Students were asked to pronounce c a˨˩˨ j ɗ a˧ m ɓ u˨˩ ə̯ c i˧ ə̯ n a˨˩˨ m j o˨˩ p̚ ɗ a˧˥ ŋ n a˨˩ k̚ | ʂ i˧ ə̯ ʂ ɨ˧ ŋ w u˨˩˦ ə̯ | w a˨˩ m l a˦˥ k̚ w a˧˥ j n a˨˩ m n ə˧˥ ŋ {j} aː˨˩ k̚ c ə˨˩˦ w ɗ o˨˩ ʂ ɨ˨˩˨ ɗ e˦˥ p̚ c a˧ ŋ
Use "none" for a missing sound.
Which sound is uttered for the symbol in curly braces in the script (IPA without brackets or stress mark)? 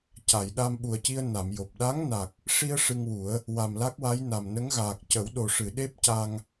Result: ɣ